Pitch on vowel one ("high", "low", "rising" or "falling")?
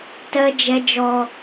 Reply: high